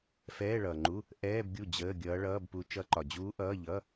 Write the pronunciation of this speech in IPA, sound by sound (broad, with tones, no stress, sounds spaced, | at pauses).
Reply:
f ɛː˧˥˧ ɭ ʌː˨ ŋ͡ǃ u˧˥˧ | ʔ ɛː˧˥˧ b ɡʲ u˥˩ d͡ʑ əː˧˥˧ ɡʲ ʌː˧˥ ɭ ʌː˧˥˧ b p u˧˥ t͡ʃ ʌ˧˥ ǃ ɒ˨ d͡ʑ uː˧˥ ʔ ʌː˧˥˧ ʎ ʌ˧˥˧